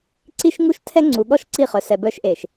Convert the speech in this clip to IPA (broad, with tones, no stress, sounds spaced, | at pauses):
ǀ i˦ ʃ ŋ u˦ ʃ tʰ ɛ˦ ŋ͡ǀ u˨ ɠ ɔ˦ ʃ ǀ i˦˨ χ œ˨ s ɛ˨ b œ˦ ʃ ʔ e˨ ʃ